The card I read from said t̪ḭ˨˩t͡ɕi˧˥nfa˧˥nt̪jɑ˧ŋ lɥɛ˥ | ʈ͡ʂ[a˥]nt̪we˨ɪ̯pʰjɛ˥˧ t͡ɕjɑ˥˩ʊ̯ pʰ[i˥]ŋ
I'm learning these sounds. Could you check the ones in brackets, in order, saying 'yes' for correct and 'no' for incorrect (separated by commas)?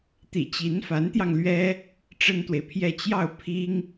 no, yes